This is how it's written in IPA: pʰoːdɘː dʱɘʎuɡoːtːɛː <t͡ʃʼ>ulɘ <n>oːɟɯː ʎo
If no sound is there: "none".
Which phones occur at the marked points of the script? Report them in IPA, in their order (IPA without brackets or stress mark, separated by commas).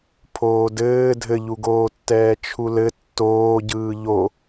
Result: t͡ʃʰ, tː